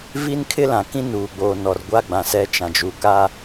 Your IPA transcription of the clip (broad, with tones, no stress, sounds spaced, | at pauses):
v i˦ n kʰ ɪ˦ l ã˨ k ĩ˦ n uː˨ ɡ͡b oː˨ n ɔ˨ r ɡʷ a˦ ɡ͡b ã˨ s ɛ˦ t͡ʃ ã˨ d͡ʒ u˨ k a˦